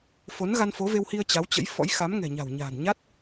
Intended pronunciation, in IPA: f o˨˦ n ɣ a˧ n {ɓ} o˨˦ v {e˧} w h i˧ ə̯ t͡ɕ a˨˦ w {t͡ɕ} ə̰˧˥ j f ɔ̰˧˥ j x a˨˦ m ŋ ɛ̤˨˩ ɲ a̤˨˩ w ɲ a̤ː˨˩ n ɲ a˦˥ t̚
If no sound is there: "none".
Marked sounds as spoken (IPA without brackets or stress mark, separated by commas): f, e˧, t͡ɕ